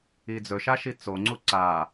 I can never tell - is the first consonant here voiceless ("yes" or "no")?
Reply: no